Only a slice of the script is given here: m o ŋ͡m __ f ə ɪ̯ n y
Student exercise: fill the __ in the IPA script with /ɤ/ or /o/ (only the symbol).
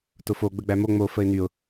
o